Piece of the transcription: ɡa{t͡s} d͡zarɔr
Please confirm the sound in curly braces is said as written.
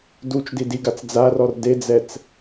yes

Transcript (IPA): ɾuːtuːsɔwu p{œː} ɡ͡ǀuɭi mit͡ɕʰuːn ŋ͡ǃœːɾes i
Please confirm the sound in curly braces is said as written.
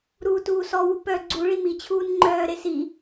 no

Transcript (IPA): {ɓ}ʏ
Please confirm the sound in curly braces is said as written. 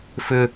no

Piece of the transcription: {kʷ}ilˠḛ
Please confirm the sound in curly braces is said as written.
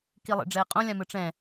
no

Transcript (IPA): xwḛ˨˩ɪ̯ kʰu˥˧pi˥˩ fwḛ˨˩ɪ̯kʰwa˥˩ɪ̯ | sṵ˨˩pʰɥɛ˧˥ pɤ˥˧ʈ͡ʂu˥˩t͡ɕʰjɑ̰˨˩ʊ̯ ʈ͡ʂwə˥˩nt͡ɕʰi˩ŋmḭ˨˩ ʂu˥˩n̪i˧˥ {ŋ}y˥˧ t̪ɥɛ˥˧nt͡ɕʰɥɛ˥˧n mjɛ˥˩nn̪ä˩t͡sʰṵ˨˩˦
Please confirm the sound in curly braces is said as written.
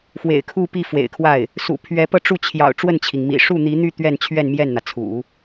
no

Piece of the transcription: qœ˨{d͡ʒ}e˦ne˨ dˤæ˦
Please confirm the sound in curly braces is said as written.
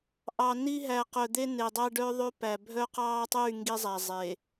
no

